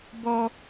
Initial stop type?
plain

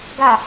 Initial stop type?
plain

